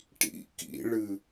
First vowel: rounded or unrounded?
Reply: unrounded